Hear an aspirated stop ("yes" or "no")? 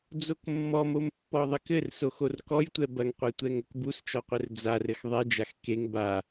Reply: no